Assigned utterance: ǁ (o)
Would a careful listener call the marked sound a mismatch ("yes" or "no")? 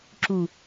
yes